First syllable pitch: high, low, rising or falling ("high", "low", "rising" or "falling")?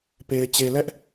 low